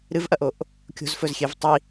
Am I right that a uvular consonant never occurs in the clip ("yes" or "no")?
yes